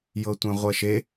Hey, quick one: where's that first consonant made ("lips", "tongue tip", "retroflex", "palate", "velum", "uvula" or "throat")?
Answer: palate